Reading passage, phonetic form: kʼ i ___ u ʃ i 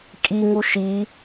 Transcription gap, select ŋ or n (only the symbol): ŋ